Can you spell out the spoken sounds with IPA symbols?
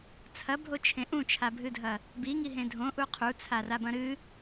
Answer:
t͡sʰ ɐ bʱ o t͡ʃʰ ẽ ʔ ũ t͡ʃʰ a bʱ ɨ dʱ ɐ | b i ŋ i ɦ ẽ dʱ õ ʔ u qʰ u t͡sʰ a r a b ɐ̃ ɾ ɨ

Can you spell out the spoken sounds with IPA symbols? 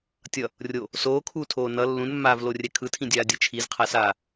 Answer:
tʲ ʌ | rʲ o | s oː kʰ uː tʰ oː n ʌ lː ũ n mː aː v l o rʲ ɛ kʰ ɯ tʰ ĩ dʲ aː dʲ ɯ t͡ʃʰ i z qʰ a s aː

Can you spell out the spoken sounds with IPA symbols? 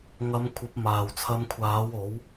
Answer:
ŋ ɐ˨˧ m kʷʰ ɐ˨˥ p̚ m aː˨˩ w t͡sʰ ɐ˧ m kʷʰ aː˨˥ w o˨˥ w

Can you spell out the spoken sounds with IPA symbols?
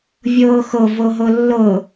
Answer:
vʲ ɤː x ɤ v ɤ ɦ ɤ lː ɤ

